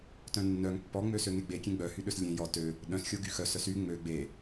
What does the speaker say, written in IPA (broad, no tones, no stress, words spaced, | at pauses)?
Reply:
tœ̃nːœŋ pːɔŋ͡møsøŋe ɡ͡bekʲẽ ɡ͡bœhyɗøs lʲẽ jɔ tø | ɗœ̃sxʲo ɡyxœsœs y ŋ͡mø ɡ͡be